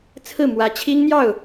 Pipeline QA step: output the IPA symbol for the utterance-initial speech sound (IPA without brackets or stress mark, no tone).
t͡sʰ